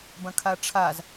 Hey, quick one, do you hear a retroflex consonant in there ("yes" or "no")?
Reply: yes